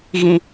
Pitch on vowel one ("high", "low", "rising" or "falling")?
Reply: high